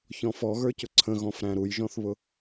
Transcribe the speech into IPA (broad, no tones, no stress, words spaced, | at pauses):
çɔ̃fɔɣə˞cʊ ǀʰə̃ɣɔ̃fɾæ̃ ɾujʒɔ̃θβʊ